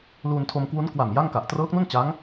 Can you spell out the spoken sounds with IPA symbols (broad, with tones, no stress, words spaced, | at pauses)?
luː˧ntʰo˧m kwu˦˥n kwa˨˩m ja˥˩ŋka˨˩ʔ trɤː˦˥k̚nu˥˩nt͡ɕa˦˥ŋ